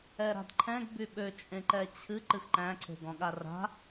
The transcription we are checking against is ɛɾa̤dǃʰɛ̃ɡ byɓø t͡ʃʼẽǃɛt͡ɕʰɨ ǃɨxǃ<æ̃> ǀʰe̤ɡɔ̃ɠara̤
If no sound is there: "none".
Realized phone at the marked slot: æ̃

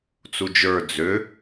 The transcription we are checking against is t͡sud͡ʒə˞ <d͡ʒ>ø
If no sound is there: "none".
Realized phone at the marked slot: d͡z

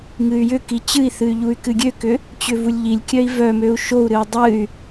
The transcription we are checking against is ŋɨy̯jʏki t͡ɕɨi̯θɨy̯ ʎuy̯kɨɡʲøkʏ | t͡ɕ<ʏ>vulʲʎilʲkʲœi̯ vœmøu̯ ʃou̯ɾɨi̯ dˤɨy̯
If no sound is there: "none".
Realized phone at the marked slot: ʏ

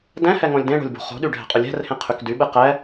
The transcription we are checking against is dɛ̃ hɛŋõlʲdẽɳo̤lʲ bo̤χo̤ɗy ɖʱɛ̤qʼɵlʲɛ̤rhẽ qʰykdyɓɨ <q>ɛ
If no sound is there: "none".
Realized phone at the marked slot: q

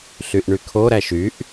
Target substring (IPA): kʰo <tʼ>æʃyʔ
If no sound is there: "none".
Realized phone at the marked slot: ɾ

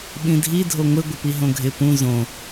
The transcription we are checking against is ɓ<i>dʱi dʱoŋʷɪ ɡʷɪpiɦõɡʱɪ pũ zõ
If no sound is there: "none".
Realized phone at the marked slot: ĩ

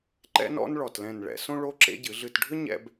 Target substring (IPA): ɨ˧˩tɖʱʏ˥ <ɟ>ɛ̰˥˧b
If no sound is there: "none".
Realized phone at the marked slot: ɲ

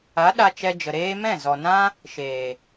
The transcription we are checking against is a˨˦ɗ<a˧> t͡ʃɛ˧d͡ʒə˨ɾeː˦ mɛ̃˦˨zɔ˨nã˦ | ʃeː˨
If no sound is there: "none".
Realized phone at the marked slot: a˧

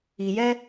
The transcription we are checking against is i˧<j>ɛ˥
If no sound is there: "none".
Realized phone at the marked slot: j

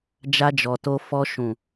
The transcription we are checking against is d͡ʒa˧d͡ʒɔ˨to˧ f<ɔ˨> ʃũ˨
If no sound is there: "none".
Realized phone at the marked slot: ɔ˧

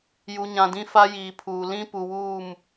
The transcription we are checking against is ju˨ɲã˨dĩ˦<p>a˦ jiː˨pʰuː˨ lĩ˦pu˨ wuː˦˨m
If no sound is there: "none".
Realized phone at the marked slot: f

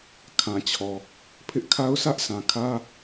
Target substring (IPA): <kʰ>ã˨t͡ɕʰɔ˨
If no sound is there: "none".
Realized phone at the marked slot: kʰ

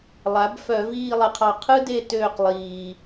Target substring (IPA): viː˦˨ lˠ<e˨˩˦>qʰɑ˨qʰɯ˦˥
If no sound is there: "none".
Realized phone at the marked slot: e˨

